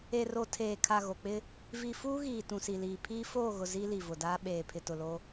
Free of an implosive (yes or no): no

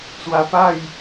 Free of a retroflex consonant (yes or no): yes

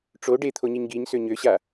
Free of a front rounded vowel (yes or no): no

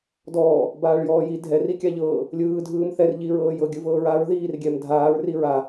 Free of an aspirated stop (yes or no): yes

